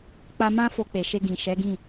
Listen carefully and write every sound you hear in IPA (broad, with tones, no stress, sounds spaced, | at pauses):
k͡p a˦ m ã˦ f o˧ k͡p e˨ ʃ e˧ ɡ ĩ˨ ʃ ɛ˨˦ ɡ ĩ˦˨